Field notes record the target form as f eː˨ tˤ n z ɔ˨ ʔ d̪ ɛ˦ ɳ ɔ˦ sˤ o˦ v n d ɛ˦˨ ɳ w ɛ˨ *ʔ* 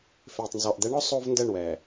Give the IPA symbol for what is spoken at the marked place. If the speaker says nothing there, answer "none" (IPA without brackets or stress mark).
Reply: none